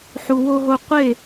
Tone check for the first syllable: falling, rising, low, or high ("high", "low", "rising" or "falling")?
low